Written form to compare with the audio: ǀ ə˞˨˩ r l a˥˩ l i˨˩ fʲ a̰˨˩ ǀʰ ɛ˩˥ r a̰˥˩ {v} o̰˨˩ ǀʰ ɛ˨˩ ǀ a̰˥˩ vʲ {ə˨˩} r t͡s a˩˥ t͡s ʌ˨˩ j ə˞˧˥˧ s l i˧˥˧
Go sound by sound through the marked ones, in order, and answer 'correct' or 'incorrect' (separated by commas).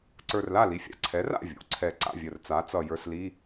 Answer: incorrect, correct